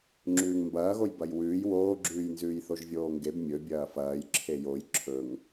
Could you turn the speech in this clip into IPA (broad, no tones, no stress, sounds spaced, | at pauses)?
ŋ͡ǁ ʉː ŋ m b ɐː ɣ o j b ɐ j w ʉː j w oː ɡ͡ǁ ʉː j n z ʉː j θ o ʒ vʲ oː ŋ ɡ e b mʲ ɵ bʲ ɐː f ɐː j ǁʰ e j o j ǁʰ ɵ ŋ